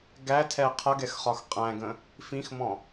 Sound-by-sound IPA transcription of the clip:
ɡætʰɛ qʰʌɡɛxχɒx qʼæ̃ɡə̃ | fĩxmɔ̃

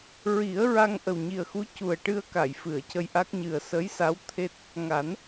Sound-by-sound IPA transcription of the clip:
ɹi˨˩˦ə̯ ɹa˧ŋ ʔə˨˩wɲi˨˩ə̯xu˧˥cu˨˩ə̯ ʈɨ˧ə̯ka˨˩˨j fɨ˨˩˨ə̯cə˧jʔa˦˥k̚ɲɨ˨˩ə̯ sə˧˥jsa˧˥wt̪ʰe˦˥t̚ | ŋa˨˩˦n

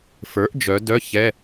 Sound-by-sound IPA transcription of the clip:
fə˞˩˥ʔd͡ʒœ˩˧ dœ˧˥˧ çɛ˧˥˧

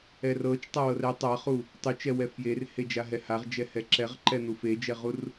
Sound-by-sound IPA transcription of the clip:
ɛrɤt͡ʃ tˤawɤrɛ tˤaχu | tˤut͡ʃɛwɛ fjerhed͡ʒaɦɛ haʁd͡ʒɛhɛ ǁɛʁǃɛn̪u fed͡ʒɛʁur

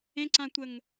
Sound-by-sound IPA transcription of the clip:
ẽǀãtʷəŋ

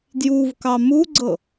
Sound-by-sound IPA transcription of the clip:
djuvkɑ muɡ͡ǀɤ

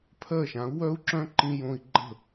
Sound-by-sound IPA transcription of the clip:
pʰɜ˦˨ʃã˨˦u̯ wœ˦u̯ǁœ̃˦ǃĩ˧jõ˧i̯ ɡ͡ǃə̤˦˨

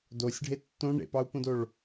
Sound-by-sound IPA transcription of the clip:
dosʲɖʱe tːõ ɳḛpɑu̯põdoɭ

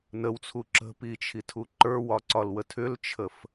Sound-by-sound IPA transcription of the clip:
nəwt͡sʰu ǁə̤pit͡ʃʰitʰu ǃə˞wɒǀɒlwə tʰʏlt͡ʃʰəf

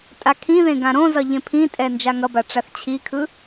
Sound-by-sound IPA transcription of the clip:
tʼakʰĩðẽ ɡãɾõzʌ ʎẽpʰĩtʼɛ nd͡ʒaŋʌba ʈ͡ʂaθt͡ɕʰikʰɯ

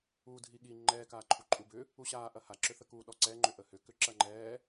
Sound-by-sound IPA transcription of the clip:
uːdʱiɠi ŋ͡ǃɛːkaː ǃʰuǃʼubʏ | uɕaːʔɐ haǁʏθəkuː ɗɔǀɛ ŋ͡ǃʏʔəhʏkʏ ǁɐŋ͡ǃɛː

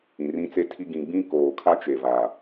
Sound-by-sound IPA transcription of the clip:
ĩ˨rĩ˦t͡se˦tʰi˦ ɡĩ˨ ɡ͡bĩ˦koː˨kʰa˦ t͡ʃe˨va˨

